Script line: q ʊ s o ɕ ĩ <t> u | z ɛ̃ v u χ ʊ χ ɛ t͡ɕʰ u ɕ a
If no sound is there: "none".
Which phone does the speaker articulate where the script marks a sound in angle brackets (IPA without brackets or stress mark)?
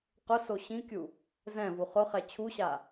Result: kʲ